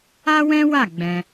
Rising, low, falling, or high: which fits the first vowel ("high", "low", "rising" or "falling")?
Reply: high